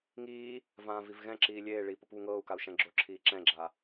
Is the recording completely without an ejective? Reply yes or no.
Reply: yes